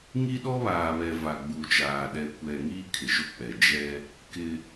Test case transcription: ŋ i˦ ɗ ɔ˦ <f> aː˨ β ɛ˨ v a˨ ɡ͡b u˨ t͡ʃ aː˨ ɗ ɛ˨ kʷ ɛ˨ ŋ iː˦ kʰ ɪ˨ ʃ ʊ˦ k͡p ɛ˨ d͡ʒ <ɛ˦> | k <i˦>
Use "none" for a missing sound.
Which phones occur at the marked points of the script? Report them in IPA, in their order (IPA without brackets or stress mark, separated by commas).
β, ɛ˦, ɪ˦